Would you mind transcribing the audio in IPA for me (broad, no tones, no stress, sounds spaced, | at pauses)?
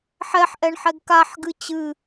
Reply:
ħ ɛ ħ ʔ ɛ ɳ ħ ɛ ɡ k a ħ ɡ ɨ t͡ɕ ɨ